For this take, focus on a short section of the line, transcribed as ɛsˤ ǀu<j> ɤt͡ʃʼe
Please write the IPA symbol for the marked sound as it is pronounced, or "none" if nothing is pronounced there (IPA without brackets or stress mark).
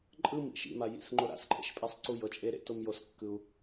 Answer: j